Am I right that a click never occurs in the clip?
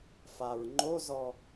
no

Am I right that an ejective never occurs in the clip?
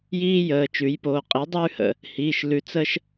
no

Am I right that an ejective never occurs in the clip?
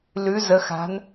yes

